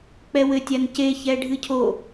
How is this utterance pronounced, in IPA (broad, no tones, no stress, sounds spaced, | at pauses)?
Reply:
k͡p ɛ w ɘ tʲ a n c e ç ɛ ɖʱ ɨ cʰ o